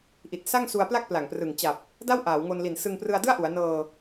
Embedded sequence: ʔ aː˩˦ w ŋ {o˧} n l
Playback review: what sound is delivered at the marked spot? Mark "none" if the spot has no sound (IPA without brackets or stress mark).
o˧